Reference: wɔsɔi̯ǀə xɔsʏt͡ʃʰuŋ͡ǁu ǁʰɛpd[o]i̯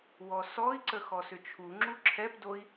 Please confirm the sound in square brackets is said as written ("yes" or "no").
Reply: yes